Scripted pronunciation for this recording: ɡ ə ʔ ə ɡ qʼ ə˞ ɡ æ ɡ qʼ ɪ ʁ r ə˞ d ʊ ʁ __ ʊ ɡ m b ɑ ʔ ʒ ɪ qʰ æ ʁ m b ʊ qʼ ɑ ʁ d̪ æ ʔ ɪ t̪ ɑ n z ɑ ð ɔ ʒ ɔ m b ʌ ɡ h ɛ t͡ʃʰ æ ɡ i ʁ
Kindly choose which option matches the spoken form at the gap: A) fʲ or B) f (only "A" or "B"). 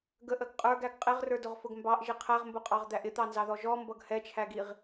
B